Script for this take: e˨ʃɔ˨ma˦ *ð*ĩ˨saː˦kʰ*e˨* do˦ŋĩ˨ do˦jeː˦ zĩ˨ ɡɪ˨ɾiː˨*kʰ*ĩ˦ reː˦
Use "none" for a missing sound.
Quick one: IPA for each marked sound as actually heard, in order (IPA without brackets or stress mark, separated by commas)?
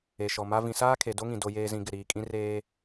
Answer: v, e˨, kʼ